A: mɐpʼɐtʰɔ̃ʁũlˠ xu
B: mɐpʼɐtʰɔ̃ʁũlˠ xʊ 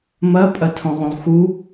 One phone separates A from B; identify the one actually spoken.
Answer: A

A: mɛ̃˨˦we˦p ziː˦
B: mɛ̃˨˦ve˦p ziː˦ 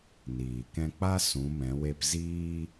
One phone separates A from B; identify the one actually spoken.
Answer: A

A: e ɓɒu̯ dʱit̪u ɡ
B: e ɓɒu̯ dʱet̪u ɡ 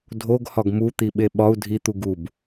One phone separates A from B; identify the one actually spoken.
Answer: A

